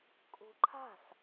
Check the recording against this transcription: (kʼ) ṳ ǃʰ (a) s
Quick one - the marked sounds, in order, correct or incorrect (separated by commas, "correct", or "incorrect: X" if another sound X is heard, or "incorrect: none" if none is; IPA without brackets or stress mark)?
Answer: correct, incorrect: a̤